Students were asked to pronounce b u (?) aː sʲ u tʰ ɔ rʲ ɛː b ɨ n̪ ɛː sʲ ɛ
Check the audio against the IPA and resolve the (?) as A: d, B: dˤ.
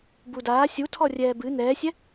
A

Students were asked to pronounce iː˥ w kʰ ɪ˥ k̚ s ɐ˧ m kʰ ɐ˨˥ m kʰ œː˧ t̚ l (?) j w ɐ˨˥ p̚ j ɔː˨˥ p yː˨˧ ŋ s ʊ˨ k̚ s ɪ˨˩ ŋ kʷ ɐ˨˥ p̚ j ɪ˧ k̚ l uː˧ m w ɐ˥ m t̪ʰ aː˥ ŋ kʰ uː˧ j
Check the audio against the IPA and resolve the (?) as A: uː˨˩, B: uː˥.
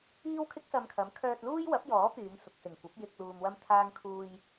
B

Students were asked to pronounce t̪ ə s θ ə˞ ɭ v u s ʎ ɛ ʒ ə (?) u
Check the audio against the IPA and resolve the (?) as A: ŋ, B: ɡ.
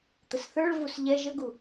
B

